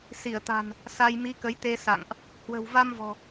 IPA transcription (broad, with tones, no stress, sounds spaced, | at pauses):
s i˧˩ ə̯ t̪ a̤˨˩ n | s a˧ j m i˨˦ k ə˨˦ j t̪ e˧ s a̰˧˨ ŋ ʔ | h w ə̤˨˩ w v a˧ m v ɔ̤˨˩